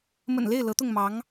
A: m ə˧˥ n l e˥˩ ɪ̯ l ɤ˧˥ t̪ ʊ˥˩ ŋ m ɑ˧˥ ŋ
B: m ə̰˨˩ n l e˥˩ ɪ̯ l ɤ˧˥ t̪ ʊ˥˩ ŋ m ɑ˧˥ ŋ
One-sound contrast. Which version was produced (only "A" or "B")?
B